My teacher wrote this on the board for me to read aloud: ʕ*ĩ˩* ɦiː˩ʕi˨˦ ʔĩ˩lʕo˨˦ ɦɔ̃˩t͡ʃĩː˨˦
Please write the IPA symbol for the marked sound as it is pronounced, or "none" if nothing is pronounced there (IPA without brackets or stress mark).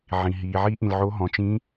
ĩ˩